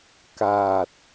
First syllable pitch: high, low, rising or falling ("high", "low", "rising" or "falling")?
low